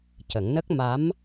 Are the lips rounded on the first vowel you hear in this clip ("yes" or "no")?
no